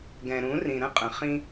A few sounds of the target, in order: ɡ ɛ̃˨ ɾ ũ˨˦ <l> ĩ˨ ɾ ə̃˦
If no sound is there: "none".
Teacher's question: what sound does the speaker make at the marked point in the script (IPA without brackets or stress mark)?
r